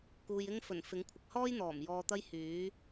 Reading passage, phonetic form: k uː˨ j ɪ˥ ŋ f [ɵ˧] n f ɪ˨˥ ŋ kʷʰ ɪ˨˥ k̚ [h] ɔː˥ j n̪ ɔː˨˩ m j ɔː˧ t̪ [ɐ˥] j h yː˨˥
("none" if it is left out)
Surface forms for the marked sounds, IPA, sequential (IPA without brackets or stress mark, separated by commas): ɵ˨˩, h, ɐ˥